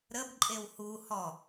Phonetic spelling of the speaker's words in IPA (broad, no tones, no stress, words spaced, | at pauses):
ɾəb ǃʼewhu hɔ